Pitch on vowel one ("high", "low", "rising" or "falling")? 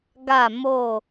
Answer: falling